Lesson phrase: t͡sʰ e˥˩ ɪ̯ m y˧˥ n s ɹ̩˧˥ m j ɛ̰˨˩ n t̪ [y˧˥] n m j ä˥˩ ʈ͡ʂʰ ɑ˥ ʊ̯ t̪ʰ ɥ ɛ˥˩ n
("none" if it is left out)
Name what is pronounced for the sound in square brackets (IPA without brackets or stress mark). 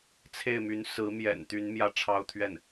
y˧˥